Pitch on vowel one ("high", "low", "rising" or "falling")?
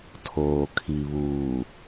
low